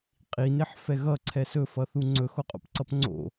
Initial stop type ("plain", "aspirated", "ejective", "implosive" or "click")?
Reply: ejective